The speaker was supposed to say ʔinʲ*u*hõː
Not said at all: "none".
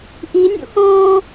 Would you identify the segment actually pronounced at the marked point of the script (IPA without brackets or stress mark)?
ṵ